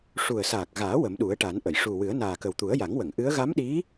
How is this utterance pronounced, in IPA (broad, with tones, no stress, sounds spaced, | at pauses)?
ʂ u˨˩ ə̯ s aː˨˩ k̚ ɣ aː˨˩˦ w ə˨˩˦ m ɗ u˨˩˦ ə̯ ʈ a˨˩˦ n ʔ ə˨˩˨ j ʂ u˨˩ w ɨ˨˩˦ ə̯ n aː˨˩ k ə˨˩ w t̪ u˨˩˦ ə̯ j a˨˩˦ ŋ w ə˨˩˨ ŋ ʔ ɨ˧˥ ə̯ ɣ a˧˥ m ɗ i˧˥